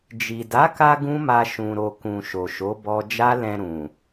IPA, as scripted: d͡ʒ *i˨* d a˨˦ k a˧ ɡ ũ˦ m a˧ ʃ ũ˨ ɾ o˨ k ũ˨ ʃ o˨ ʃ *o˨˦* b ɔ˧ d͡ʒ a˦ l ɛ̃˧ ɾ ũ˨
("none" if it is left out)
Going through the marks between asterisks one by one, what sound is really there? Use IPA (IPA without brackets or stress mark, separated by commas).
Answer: i˨, o˨˦